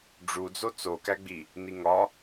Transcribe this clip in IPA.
ɖ͡ʐ u d͡z o t͡s o k æ ɡ͡b i | n i ŋ ɒ

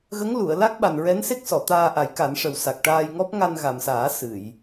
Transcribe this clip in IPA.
ɣ ə˧˥ ŋ l u˨˩˨ ə̯ l a˦˥ k̚ ɓ a˨˩ n ɹ ɛ˧˥ n s e˦˥ k̚ s ɔ˨˩˨ t̪ aː˧ ʔ a˨˩˦ j k a˨˩˦ n ʂ ə˨˩ w s a˨˩ k̚ ʈ aː˧ j ŋ ɔ˦˥ p̚ ŋ a˧ n ɣ a˨˩ m s aː˨˩˦ s ɨ˨˩˨ j

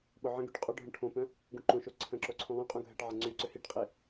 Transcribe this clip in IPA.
ɓ ʊ ʕ ə̃ ɡ y ʈ qʼ œ ɖʱ œ̃ ʈʰ õ p œ̃ | ɡ ũ ǃ õ ʃ o ǀʰ ə̃ ǁ o ǀʰ ũ lˠ œ̃ qʼ ũ ɡʱ ɛ ʈ ʕ ɐ ŋ͡ǀ y ǀ ʏ h i ʈ qʼ i

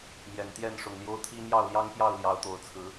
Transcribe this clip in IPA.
m j ɛ˨˩ n t̪ j ɛ˥˨ n ʂ ʊ˨˩ ŋ l j o˦ ʊ̯ t̪ʰ i˦ m j ɑ˥˨ ʊ̯ l j ɑ˦ ŋ p j ɑ˥˨ ʊ̯ l j ɑ˨˦ ʊ̯ t̪ o˨˩ ʊ̯ t͡sʰ ɹ̩˨˦

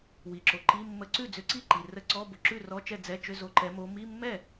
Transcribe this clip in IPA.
w i˨ ǁ o˨ ǃ i˧˥˧ mː ə˧˥ ǀ ʉ˥˩ d͡z ʏ˧˥ ǀ i˥˩ ǃ i˨ r ə˧˥˧ ǀ ɔ˧˥˧ b o˨ ǁ ʉ˥˩ r ɔ˧˥˧ t͡ʃ ɛ˥˩ d͡z ɛ˧˥˧ t͡ʃ ʏ˧˥˧ z o˧˥˧ ǃ ɛ˧˥ m o˧˥ m i˧˥˧ mː ɛ˥˩

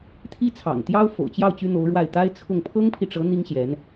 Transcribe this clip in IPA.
t̪ʰ i˥ t͡sʰ ɑ̰˨˩ ŋ t̪ j ɑ˥ ʊ̯ f o̰˨˩ ʊ̯ t͡ɕ j ɑ˥˩ ʊ̯ t͡ɕ y˥ n̪ o˧˥ ʊ̯ ɻ w a˥˩ ɪ̯ t̪ a˥ ɪ̯ t͡sʰ ʊ˥˩ ŋ pʰ ɤ˥ ŋ pʰ i˨ ʈ͡ʂ ɤ˧˥ n̪ i˥ ŋ ɕ j ɛ˧˥ n

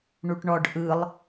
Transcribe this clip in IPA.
ɳ u ʈ ɳ ɔ ɖ ʔ ɯ lˠ

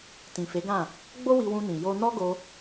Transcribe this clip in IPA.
t ĩ˨ f e˨˦ ɡ ã˦˨ | ɡ͡b o˦ w i˧ w ũ˧ n ĩ˨ j o˧ n ɔ˦ ɡ o˧

